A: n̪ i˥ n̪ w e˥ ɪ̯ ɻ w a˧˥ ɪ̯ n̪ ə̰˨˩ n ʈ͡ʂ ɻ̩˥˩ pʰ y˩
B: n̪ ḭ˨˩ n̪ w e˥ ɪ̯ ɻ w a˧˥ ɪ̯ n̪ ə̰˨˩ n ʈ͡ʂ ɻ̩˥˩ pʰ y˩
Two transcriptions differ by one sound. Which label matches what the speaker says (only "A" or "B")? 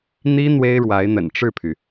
A